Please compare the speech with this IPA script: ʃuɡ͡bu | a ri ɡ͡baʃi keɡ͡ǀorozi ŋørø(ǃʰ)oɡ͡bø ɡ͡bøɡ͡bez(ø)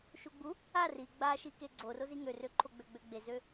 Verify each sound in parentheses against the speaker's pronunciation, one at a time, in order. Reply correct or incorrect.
correct, correct

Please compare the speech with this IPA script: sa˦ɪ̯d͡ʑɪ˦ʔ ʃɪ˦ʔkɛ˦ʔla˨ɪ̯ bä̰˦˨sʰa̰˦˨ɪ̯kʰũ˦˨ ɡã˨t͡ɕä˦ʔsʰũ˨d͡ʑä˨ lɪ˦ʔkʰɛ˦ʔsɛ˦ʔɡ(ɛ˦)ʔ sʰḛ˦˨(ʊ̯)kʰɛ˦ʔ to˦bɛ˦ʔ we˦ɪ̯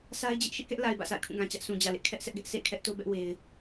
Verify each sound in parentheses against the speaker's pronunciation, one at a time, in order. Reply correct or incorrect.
correct, incorrect: ɪ̯

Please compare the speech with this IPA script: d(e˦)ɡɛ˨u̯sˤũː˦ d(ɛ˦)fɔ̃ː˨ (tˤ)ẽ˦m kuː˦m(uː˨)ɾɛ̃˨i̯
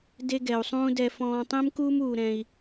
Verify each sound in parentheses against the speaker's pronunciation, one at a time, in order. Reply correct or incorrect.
correct, incorrect: ɛ˨, correct, correct

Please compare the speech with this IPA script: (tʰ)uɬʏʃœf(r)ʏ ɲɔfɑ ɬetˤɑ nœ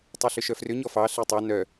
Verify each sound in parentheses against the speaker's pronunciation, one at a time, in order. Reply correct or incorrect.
incorrect: tˤ, correct

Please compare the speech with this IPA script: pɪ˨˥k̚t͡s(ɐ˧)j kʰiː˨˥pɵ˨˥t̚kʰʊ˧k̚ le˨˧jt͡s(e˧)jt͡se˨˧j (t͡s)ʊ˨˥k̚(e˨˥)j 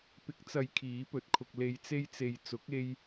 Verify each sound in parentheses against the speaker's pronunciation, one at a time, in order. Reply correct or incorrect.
incorrect: ɐ˨˧, correct, correct, incorrect: e˧

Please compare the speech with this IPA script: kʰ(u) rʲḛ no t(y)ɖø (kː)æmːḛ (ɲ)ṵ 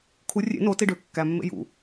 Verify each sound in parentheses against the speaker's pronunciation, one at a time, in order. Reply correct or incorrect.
correct, incorrect: i, correct, incorrect: j

